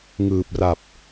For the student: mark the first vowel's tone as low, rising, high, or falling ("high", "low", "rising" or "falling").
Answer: low